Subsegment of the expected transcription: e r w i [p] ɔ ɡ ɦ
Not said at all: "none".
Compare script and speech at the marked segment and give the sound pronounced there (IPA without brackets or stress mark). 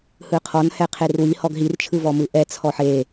h